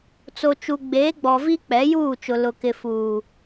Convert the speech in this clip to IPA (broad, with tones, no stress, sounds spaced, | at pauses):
t͡s o˨ t͡ʃ u˨ ɡ͡b eː˨˦ ɡ͡b ɔ˨ v i˦ k͡p ɛ˨˦ j uː˦˨ t͡ʃ ʊ˨ l ʊ˨ k ɪ˨ f uː˨